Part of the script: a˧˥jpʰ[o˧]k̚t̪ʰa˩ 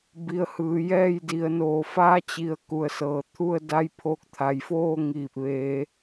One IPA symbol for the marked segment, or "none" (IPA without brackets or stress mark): o˧